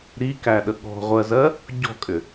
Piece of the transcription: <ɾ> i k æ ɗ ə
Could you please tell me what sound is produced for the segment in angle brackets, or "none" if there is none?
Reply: ɾ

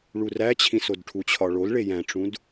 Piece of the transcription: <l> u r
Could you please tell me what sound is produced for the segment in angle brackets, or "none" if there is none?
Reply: ɭ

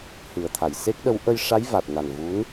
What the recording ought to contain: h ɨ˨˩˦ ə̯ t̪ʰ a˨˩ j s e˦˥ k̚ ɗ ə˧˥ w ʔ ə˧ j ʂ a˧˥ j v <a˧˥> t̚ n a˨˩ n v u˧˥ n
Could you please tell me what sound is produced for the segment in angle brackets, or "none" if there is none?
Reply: a˨˩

